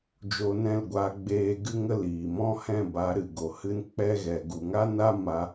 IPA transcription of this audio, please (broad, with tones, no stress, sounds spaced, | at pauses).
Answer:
d͡ʒ o˧ n ɛ̃˦˨ l ɡʷ aː˧ ɡ͡b eː˧ ɡ ɨ˦ ŋ ə˦ l iː˨ m ɔ̃˦ h ɛ̃˦˨ b a˨˦ ɾ ɨ˨ ɡ o˨ h ɨ˦ n k͡p ɛ˦ ɣ ɛ˨ ɡ u˨ ŋ a˦ n a˦ m a˧